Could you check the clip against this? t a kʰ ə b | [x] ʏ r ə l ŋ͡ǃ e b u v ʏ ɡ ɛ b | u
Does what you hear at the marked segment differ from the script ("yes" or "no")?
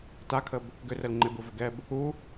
yes